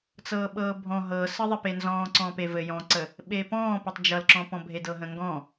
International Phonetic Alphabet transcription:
t͡s ɤː ɓ ɤː bʱ ɔ̃ ɦ ɤ s ə ðˤ ɘ p e n z ɔ̃ː ǀ ɔ̃ p e v ɘ j ɔ̃ ǀ ə | ɓ e p ɔ̃ː p ɛ tˤ d͡ʒ ʌ l ǁ ɔ̃ p ɔ̃ bʱ e d ɤ ɦ ə̃ ŋ ɡ ɔ̃

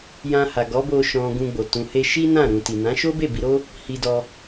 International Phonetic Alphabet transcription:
j ã˧ h a˨ ɡ ɔ˨˦ b o˧ ʃ ɔ̃˨ ɡ ũ˧ ɡ͡b o˨ t ũ˨ h e˧ ʃ i˦ n ã˦˨ ɾ ũ˨ t i˨ n ã˨˦ ʃ o˦ b e˦˨ b i˧ ɾ o˦ | h i˧ d ɔ˧

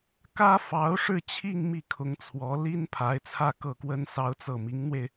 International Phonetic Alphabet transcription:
k ä˥ f ɑ˧˥ ʊ̯ ʂ ɻ̩˥˧ t͡ɕʰ i˥˧ ŋ m i˥˩ kʰ ʊ˧˥ ŋ t͡sʰ w ɔ˧˥ l i˥ n pʰ a˧˥ ɪ̯ t͡sʰ ä˥˧ k ɤ˥˩ k w ə˥ n s ɑ˥ ʊ̯ t͡s ɤ˥˩ m i˧˥ ŋ n̪ w e˧ ɪ̯

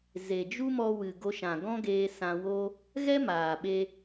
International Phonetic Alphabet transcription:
z e˨ d͡ʒ u˦ m ɔ˧ w ɨ˨ ɡ o˧ ʃ ã˨ ɡ ɔ̃˦ ɡ eː˧ s ã˧ w o˦ | ɣ ɛ˦ m aː˨ ɓ e˧

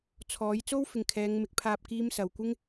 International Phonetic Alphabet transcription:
t͡sʰ ɔː˨˥ j t͡s o˥ w f ɪ˨ ŋ kʰ ɛː˨˧ ŋ m ɪ˨ k̚ pʰ aː˧ p̚ k iː˥ m s ɐ˨ w kʷ ɪ˥ ŋ

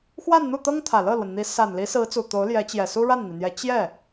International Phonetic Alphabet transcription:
x w a˥˧ n n̪ u˥˩ t̪ ɤ˥ ŋ t̪ʰ ä˨˩ l ɤ˥˩ l w ə˩ n n̪ i˧˥ s a˨˩ n l i˧˥ s ɹ̩˧˥ t͡s u˨˩ t̪ o˧˥ ʊ̯ l j ɛ˧˥ t͡ɕ j ɛ˨˩ s u˥ ɻ a˥˩ n n̪ i˩ n̪ j ɛ˧˥ t͡ɕ j ɛ˥˩

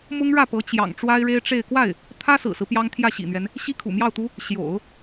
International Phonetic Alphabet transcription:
m ʊ˥ ŋ ɻ ä˥˩ p ɤ˧˥ t͡ɕ j ɑ̰˨˩ ŋ ʈ͡ʂ w a˥ ɪ̯ ɻ e˥ ɪ̯ ʈ͡ʂ e˥˧ ɪ̯ k w a˥˩ ɪ̯ | t̪ʰ ä˥ s ɹ̩˨˩ s ɹ̩˦ p j ɑ˥ ŋ t̪ʰ j ä˥˩ ɕ ḭ˨˩ n̪ ɥ ɛ˦ n | ɕ i˥ kʰ ṵ˨˩ m j ɑ˥˩ ʊ̯ t̪ u˥ | ɕ j o̰˨˩˦ ʊ̯

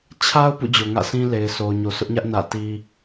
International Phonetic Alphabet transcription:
t͡ɕʰ a˦ ʊ̯ p ṵ˦˨ d͡ʑ o˨ ŋ ä̰˦˨ s ĩ˦ l e˨ ɪ̯ sʰ o˨ ʊ̯ ɲ o˨ sʰ ʊ˦ ʔ ɲ ä˦ ʔ n ä̰˦˨ t i˦

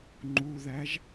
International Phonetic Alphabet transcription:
ŋ͡ǃ u ð æ ʒ

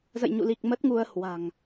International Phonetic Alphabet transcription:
z ə̰˧˨ j ɲ ṵ˧˨ l i˨˩ k̚ m ə˦˥ t̚ ŋ u˧ ə̯ h w a̤˨˩ ŋ

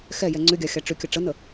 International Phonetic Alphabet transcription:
x ɛ j ɛ ŋ͡ǀ ʏ ɡʲ a xʲ a ʈ͡ʂ ʏ kʲ ə ʈ͡ʂ ə n ə

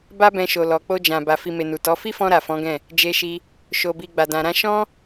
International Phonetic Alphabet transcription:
b a˦ b ɛ̃˧ ʃ o˨ l ɔ˨ k͡p o˧ d͡ʒ ã˨ b a˨ f i˨ m e˨ n u˨ t ɔ˨˦ f i˦ f ɔ̃˧ ɾ a˨ f ɔ̃˨˦ ɡ ɛ̃˦˨ | d͡ʒ e˧ ʃ i˧ | ʃ o˨ b i˨ ɡ͡b a˨ d ã˨ ɾ ã˧ ʃ ɔ̃˦

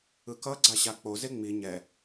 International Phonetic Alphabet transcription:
ɯ k ʌ ɡ͡ǀ a ɕ a k͡p o z e ŋ͡m i ɲ ɛ

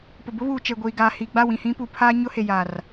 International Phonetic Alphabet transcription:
p ʊ˨ b ʊ˦ β uː˨ t͡ʃ e˨ ɡʷ iː˨ ɡ aː˨ h iː˨ ɡ͡b a˦˨ w ĩ˨ h ĩ˦ p u˨ pʰ aː˦ ɲ ʊ˦ h e˨ j aː˨ r

